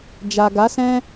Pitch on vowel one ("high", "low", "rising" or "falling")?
low